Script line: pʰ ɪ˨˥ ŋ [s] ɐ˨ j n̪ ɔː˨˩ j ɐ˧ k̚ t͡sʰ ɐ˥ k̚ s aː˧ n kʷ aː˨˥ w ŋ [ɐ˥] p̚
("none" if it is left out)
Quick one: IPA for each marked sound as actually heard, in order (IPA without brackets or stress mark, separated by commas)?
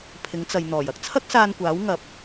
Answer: t͡s, ɐ˨